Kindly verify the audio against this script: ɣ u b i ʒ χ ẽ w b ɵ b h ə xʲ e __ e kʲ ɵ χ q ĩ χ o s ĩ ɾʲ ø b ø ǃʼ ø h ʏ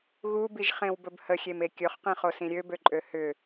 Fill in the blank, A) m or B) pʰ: A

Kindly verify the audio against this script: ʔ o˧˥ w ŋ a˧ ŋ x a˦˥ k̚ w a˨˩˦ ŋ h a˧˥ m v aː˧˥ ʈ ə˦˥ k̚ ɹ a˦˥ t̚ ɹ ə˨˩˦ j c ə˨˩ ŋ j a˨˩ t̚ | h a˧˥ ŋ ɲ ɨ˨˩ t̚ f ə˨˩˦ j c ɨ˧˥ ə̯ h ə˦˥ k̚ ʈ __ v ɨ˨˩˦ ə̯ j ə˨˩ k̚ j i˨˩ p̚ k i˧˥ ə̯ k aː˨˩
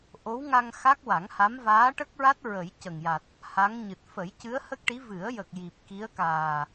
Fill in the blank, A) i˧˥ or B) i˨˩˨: A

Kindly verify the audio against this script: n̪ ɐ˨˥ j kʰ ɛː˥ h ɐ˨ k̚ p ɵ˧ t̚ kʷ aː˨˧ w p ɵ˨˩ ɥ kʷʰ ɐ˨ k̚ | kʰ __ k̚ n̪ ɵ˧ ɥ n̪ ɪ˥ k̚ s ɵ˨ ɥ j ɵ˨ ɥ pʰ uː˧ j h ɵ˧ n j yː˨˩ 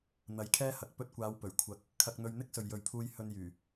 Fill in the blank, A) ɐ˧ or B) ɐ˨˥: A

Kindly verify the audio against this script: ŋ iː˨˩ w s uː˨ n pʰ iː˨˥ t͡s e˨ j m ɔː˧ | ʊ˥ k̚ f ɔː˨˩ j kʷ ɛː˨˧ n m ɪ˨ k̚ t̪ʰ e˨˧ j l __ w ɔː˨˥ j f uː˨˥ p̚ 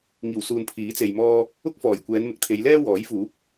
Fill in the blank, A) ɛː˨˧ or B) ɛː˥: B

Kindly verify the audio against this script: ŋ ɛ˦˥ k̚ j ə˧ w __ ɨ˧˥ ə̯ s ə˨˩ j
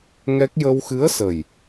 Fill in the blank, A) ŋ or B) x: B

